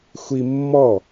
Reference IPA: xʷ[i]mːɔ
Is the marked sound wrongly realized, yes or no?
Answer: no